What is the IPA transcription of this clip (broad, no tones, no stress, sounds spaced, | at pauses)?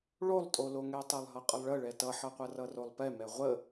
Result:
ɭ o lˠ tʼ o l o ŋ ɛ tˤ ɛ lˠ ɦ ʌ qʼ ə lˠ ɭ ə ɭ ɛ t ʌ ħ ʌ qʷ ʌ r ʌ r o lˠ p ɛ m ɛ ʁʷ ə